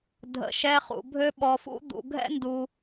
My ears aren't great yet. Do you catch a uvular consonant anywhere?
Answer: yes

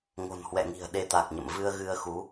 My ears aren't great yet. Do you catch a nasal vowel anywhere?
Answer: no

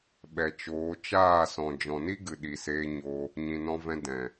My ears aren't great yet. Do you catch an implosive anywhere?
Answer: yes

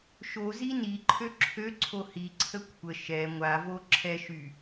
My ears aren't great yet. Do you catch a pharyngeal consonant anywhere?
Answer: no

